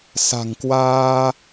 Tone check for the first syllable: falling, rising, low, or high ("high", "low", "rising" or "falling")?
low